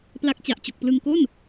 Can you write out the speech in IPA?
p l a˦˥ k̚ t͡ɕ a˨˩ ʔ t͡ɕ o˨˩ k̚ p l ɯ˧ ŋ k o˥˩ n

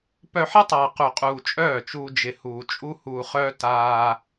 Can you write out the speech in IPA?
p œ˧ ħ ɪ˦ tˤ aː˨ q u˨ qʼ uː˨ t͡ʃʼ œː˦˨ t͡ʃ uː˧ d͡ʒ ɪ˨ h uː˨ t͡ʃʼ u˦ h uː˧ χ œː˦ t aː˧

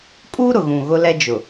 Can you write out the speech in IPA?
kʼ uː˦ ɾ ʊ˨ ɣ ũ˨ ɣ ʊ˦ l ɛ˦ d͡ʒ ʊ˨

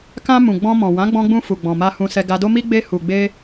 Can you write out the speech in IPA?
k ã˧ m ũ˨ ɡ͡b ɔ̃˧ m ɔ̃˨ w ã˨˦ ɡ͡b ɔ̃˧ ɡ͡b ũ˧ f u˨ ɡ͡b ɔ̃˨ m a˧ h ũ˧ s ɛ˧ ɡ a˧ d o˦ m i˦ ɡ͡b e˧ h u˨ ɡ͡b e˧

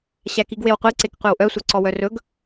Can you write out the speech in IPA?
ɕ æ k i ɡ w e w qʷ i ǀ e k qʷ e w ʔ œ sʷ œ ǀ ɔ w œ r ɵ ɡ

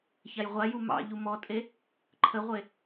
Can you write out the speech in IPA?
ç a j ʁʷ a j u m ɑ̰ ʎ u m ɔ tʼ e | ǃʰ ə ʁʷ e

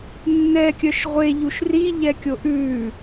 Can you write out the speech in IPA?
nː ɛ kʲ œ ʃ ʁʷ e ʎ u ʃ r i ʎ ɛ kʲ o ʔ ʉː

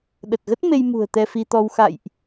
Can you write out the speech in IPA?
ɗ ə˨˩ t̚ ɣ ə˦˥ t̚ m e˧ j m ṳ˨˩ ə̯ t̪ ɛ˧ f i˧ t̪ ɔ˧ w x a̰˧˨ j ʔ

